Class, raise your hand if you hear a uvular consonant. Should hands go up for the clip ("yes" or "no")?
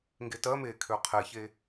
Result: yes